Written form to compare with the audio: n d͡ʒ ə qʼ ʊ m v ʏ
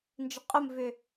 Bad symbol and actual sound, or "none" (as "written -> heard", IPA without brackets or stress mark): none